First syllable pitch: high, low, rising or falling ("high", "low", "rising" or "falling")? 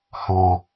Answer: low